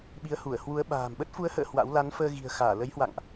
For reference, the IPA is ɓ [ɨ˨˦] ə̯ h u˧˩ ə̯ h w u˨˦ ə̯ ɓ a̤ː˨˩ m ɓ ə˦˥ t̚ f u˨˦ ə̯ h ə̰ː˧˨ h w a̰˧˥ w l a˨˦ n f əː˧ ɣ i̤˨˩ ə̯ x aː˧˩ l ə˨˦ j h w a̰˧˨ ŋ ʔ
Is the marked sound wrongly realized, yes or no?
yes